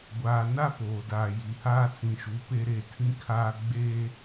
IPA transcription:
ɡʷ aː˨ n a˦ p oː˨ d aː˨ j i˨ h aː˦ t͡s ĩ˨ ʃ u˨˦ p e˦ ɾ e˦˨ tʰ ĩ˦ kʰ aː˦ ɡ͡b eː˦

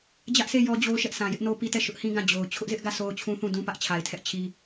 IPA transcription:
d͡ʑ ä˦ ʔ sʰ e˦˨ j ɔ˦ d͡ʑ o˦ ʊ̯ ʃ ɛ˦ ʔ s ã˨ j ɪ˦ ʔ n o˦ p i˦ t ɛ˦˨ ʃ ʊ˦ ʔ h ĩ˦ ɡ ã˦˨ d͡ʑ o˨ ʊ̯ t͡ɕʰ ʊ˦ ʔ z ɪ˦ ʔ ɡ ä˦˨ sʰ o˦ ʊ̯ t͡ɕʰ ũ˦ θ ũ˦˨ d ũ˦ p ä˦ ʔ t͡ɕʰ a˨ ɪ̯ tʰ ɛ˦ ʔ t͡ɕʰ i˦

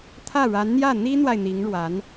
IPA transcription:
t̪ʰ ä˥˩ ɻ a˧˥ n n̪ j ä˥˩ n̪ i˥ n̪ w a˨ ɪ̯ n̪ i˧˥ ŋ ɻ w a˧˥ n

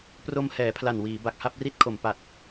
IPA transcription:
p r o˧ m h ɛː˩˦ pʰ l a˨˩ n w iː˩˦ b a˨˩ k̚ h a˥˩ p̚ r i˦˥ t̚ kʰ o˩˦ m p a˨˩ t̚

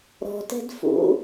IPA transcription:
ɾ ɔ̤ t ɛ̤ d f ṵ

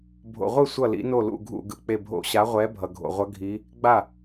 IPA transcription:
bʱ o̰˩ ʁʷ ɯ˥˩ sʷ ʌ˥˩ l ḭ˨˥ n o˥˩ l ṵ˥˩ ɡʱ ṵ˥˩ ɡ ɯ˧˩˧ k͡p e˧˩ bʱ o̰˧˩˧ ɕ a˨˥ ʁʷ ɛ˨˥ bʱ ʌ˩ ɡʱ o̰˩ ʁʷ ʌ˨˥ ɡʱ i˨˥ | ɡ͡b a˥˩

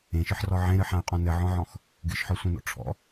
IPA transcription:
ẽ ʃ ɨ ħ r ɔ ʕ ẽ ɾ ɨ ħ ã y̯ qʼ ɔ̃ n ɘ ʕ ɔ̃ ʕ ɔ̃ x | ɡ ɨ ʃ ħ ɔ sʷ ẽ n ɔ̰ ʈ͡ʂʰ ɔ̰

